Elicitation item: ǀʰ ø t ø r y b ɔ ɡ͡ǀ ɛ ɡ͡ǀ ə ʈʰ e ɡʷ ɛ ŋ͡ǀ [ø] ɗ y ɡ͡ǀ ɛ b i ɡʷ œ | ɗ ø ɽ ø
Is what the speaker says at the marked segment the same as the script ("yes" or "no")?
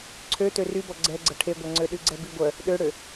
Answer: yes